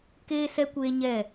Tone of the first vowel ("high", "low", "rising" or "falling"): high